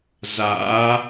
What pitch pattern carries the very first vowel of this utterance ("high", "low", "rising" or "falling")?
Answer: rising